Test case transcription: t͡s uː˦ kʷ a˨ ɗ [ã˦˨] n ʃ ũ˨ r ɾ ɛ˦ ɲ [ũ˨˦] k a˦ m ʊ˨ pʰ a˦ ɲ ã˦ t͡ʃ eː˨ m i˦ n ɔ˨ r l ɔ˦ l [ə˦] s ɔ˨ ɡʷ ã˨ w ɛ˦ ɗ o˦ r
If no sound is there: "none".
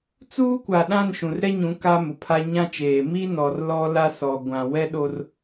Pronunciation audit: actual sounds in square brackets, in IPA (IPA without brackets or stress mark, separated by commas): ã˦˨, ũ˨˦, a˦